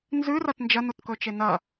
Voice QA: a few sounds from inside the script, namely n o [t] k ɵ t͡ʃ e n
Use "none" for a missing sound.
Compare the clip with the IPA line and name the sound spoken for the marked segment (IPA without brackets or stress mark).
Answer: t